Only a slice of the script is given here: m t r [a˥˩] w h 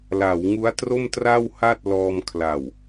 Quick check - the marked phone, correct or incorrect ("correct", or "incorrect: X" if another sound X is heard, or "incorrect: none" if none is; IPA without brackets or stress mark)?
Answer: correct